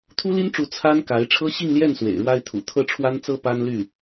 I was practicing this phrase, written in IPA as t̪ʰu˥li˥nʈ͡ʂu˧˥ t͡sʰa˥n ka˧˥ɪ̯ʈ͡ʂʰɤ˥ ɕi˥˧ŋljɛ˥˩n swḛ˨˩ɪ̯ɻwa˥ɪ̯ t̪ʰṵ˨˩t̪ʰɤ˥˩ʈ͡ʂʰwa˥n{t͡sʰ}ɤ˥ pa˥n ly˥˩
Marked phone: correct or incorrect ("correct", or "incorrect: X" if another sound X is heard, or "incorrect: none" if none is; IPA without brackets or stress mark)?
incorrect: t͡s